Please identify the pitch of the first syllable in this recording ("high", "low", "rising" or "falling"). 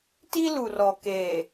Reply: high